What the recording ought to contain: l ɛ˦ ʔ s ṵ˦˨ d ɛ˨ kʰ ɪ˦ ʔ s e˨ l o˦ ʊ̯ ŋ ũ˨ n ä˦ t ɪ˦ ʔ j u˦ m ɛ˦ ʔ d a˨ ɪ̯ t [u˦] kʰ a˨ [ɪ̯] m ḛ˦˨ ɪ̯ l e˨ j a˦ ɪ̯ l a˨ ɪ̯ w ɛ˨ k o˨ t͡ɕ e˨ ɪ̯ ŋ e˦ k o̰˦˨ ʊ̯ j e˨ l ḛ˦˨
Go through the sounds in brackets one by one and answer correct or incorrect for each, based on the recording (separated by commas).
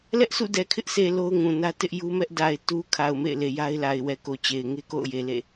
correct, incorrect